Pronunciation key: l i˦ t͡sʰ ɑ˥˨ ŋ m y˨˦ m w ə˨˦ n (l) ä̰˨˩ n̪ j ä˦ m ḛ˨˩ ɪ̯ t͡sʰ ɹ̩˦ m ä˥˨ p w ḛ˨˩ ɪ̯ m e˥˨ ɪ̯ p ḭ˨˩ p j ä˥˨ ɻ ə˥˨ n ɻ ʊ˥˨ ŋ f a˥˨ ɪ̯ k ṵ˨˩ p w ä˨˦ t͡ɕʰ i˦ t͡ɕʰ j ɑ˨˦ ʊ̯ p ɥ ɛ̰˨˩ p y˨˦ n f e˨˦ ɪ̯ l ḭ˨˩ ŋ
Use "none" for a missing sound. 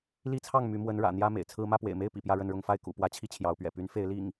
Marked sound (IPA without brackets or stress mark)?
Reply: ɻ